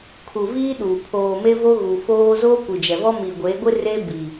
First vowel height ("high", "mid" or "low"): high